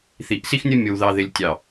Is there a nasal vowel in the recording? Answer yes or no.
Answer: no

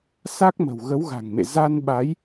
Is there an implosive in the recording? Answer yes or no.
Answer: yes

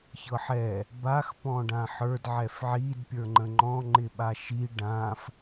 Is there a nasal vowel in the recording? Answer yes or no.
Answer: yes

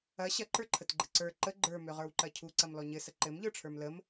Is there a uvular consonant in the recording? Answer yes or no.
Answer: yes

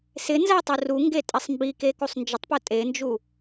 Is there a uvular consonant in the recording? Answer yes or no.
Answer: no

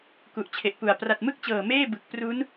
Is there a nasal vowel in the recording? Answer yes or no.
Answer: no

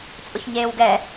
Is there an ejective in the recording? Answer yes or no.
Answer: yes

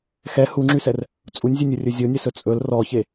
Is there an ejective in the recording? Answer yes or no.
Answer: yes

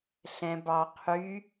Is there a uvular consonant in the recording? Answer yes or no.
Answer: yes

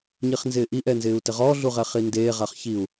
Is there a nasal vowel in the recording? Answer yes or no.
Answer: no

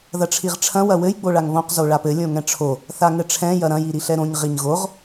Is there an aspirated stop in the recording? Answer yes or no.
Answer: yes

